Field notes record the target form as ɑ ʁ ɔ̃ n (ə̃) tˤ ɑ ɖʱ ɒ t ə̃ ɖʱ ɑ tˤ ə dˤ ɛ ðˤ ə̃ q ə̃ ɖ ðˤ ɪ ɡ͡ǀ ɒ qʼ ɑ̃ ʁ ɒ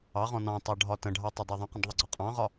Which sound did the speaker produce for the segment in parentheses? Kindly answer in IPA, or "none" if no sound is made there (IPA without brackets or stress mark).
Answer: ɑ̃